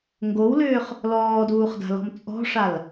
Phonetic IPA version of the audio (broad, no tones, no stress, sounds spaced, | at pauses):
ŋ ɡ o w l ʏː χ | l ɔː d uː χ d a̤ l ɔ̤ m t͡sʼ ɔ̤ ʂ a l